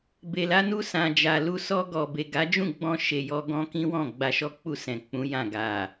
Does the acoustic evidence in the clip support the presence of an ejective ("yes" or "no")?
no